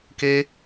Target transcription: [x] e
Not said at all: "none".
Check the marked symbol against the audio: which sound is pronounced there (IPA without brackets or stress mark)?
k